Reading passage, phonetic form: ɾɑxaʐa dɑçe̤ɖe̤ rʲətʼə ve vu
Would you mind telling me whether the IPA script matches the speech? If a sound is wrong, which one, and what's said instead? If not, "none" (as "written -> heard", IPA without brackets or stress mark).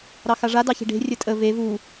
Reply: none